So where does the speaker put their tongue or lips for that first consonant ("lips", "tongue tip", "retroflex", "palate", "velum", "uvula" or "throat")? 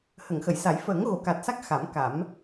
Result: throat